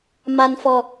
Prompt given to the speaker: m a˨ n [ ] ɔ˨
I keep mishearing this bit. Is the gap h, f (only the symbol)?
f